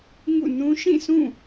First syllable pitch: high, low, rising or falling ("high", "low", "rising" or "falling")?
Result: falling